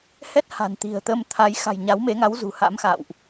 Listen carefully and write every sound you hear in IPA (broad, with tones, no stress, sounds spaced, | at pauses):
h ɛ˦˥ t̚ h a̤˨˩ n t̪ i̤˨˩ ə̯ t̪ ə˧ m t̪ʰ a˨˦ j x a̤˨˩ j ɲ a˨˦ w m e˨˦ ŋ a˨˦ w z ṳ˨˩ h a̰˧˥ m x a̰˧˨ w ʔ